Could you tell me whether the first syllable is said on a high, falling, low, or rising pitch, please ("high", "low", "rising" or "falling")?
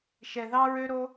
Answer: low